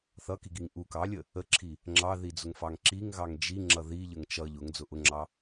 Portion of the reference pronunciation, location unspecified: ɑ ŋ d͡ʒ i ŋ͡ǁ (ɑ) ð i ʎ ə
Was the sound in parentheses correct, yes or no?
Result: no